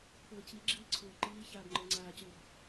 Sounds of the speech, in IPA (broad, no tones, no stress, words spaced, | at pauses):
pɤːciɡ͡ǁiː ǀʰoːǃiːçaːb ŋ͡ǃə˞ŋ͡ǀaːcøb